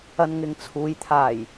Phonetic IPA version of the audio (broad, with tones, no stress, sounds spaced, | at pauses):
ɐ˧ n ŋ ɪ˨ ŋ t͡sʰ uː˨˧ j t̪ʰ aː˨˩ j